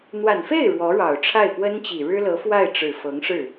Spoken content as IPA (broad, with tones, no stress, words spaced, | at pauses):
n̪wa˨˩nfe˥˩ɪ̯ ɻwɔ˧˥ɻɑ˨˩ʊ̯ʈ͡ʂʰa˥˩ɪ̯ pwə˥nt͡ɕi˨˩ɻɻ̩˥lɤ˧˥ fwa˥˩ɪ̯ʈ͡ʂɻ̩˨˩fɤ˧˥ŋ ʂɻ̩˥˩